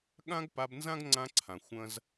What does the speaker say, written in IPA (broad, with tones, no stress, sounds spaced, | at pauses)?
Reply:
ɠ ã˦ ɡ p a˧ b n z ã˦ ɡ ŋ͡ǀ ã˦ ǀʰ ã˨ xʷ ɐ̃˦ z